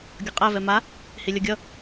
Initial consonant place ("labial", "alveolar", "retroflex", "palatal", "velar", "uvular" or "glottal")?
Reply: velar